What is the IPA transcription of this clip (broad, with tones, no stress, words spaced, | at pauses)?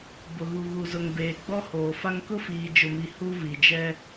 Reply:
bʊ˨ɣu˨ɣu˨zʊ˨ŋ beː˨ ɡ͡bɔ˦hoː˨fa˦ŋ kʊ˦fiː˨d͡ʒʊ˨mi˨ hu˦vi˨ d͡ʒɛ˦